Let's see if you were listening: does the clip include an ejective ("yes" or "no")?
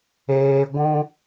no